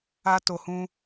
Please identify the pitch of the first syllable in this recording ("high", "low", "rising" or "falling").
high